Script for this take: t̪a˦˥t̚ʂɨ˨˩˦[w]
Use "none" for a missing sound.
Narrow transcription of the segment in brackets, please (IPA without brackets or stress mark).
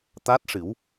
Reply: w